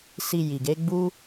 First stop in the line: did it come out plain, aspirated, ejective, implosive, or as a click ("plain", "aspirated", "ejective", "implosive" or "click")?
plain